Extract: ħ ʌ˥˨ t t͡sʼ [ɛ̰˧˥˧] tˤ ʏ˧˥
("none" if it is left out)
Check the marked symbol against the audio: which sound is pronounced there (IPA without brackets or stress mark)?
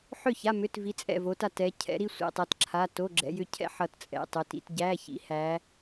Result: ɛ̰˧˥˧